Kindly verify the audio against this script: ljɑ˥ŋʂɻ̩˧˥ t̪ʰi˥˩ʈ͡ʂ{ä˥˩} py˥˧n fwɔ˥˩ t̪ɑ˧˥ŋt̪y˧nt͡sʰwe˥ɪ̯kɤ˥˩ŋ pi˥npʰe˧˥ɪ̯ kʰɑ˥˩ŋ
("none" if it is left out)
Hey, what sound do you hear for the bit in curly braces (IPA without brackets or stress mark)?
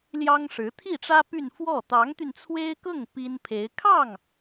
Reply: ä˥